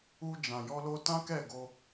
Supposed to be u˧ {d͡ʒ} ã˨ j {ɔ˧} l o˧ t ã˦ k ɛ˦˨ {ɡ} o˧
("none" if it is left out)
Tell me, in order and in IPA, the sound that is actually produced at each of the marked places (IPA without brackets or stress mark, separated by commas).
d͡ʒ, ɔ˧, ɡ